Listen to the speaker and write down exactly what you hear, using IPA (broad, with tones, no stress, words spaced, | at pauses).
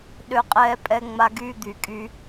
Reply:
ɗø˧qʼɛː˧ pʼɛ˧ŋ͡ma˧ɡyː˦˨ d̪y˨kʼy˧